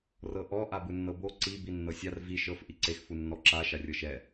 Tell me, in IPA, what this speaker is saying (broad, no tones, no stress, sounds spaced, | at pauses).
r ɤ ʔ ɔ ʔ a b ɯ nː ɤ b o ǀ i b i nː ɤ sʲ a r v i ʃ ɤ f ʔ i ǀ e x f u nː ɔ ǁ a ʃ a rʲ ɤ ʃ ɛ